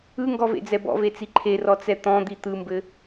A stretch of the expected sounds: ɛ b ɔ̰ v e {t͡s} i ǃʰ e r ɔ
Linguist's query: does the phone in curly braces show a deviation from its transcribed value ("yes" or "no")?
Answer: no